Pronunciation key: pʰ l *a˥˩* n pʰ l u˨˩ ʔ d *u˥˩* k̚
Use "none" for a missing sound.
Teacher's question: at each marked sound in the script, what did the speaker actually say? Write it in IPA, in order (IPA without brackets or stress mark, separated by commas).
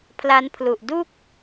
a˦˥, u˥˩